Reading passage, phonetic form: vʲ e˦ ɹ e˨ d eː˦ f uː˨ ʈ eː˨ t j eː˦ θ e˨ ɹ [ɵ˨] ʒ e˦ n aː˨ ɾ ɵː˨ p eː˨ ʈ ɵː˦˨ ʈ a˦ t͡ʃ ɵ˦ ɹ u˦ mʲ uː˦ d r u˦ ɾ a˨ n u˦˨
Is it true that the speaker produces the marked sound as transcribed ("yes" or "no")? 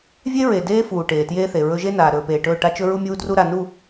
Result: no